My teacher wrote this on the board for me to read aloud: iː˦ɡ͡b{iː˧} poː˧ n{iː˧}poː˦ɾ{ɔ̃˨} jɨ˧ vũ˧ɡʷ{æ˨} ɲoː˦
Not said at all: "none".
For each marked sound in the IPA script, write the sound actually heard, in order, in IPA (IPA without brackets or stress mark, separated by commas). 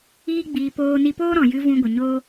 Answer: iː˧, i˧, ɔ̃˨, ə˨